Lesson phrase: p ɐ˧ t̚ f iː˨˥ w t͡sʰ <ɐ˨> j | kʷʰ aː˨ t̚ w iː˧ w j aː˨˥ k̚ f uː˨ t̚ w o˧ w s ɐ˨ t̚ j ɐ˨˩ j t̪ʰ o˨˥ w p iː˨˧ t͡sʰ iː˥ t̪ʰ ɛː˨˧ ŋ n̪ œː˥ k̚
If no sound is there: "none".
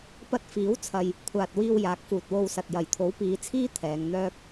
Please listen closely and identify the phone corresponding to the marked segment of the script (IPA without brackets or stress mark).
ɐ˨